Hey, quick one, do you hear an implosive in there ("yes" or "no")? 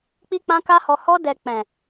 no